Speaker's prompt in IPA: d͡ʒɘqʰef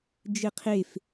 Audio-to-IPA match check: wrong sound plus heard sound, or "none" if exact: none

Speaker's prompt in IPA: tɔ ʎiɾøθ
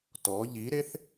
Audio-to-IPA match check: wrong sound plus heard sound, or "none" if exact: ø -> e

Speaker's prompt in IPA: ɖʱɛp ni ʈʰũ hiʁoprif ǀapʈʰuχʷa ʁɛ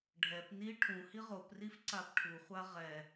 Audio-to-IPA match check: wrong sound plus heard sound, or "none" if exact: none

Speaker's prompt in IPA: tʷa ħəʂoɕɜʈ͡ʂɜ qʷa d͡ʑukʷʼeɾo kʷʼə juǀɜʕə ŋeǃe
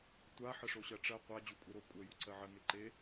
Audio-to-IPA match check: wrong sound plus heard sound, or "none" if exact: none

